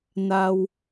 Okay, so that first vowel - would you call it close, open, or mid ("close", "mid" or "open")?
open